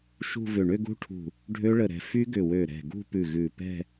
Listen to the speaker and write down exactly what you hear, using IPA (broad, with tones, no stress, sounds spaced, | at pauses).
ʃ ṳ˥˧ v ʏ˧˩ ɳ ʏ˥˧ ɡ ṳ˦˥ ʈʰ ṳ˧˩ | ɖʱ ø˦˥ ɭ ə˧˩ ɾ ɛ̤˧˩ f y˦˥ ɡ ʏ˧˩ w ø˧˩ ɾ ɛ̤˧˩ ɡ ṳ˥˧ p ʉ˧˩ ɣ ʉ˧˩ p ɛ̤˥˧